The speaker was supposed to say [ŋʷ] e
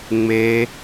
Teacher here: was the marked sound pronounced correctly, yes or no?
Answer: no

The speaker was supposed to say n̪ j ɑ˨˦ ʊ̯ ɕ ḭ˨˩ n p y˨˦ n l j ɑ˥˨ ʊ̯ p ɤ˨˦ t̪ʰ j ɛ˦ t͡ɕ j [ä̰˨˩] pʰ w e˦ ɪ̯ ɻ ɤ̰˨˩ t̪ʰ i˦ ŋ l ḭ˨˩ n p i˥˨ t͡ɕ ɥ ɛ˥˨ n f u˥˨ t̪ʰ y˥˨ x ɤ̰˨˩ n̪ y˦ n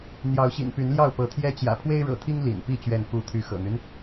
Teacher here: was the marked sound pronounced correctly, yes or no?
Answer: yes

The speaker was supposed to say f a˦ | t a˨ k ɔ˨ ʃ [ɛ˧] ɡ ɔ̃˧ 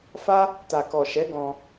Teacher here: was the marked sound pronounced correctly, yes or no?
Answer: no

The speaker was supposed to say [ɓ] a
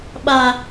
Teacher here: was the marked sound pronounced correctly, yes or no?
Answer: yes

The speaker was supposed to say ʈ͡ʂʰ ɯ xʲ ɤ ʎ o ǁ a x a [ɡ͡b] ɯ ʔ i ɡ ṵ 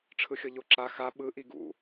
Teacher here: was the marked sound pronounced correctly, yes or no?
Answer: no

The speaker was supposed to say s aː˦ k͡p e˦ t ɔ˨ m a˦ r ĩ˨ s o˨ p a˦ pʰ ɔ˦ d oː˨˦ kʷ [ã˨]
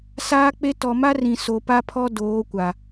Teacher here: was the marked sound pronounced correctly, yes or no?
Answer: no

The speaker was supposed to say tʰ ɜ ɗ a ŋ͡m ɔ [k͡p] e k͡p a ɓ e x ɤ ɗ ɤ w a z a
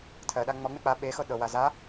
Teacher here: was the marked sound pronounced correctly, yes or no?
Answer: no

